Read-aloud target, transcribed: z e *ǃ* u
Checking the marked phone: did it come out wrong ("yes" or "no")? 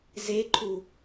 yes